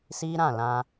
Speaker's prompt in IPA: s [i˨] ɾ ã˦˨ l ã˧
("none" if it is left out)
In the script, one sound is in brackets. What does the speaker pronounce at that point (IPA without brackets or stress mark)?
i˦